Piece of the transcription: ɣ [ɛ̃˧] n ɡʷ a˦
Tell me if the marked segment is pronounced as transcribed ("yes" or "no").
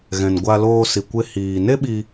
yes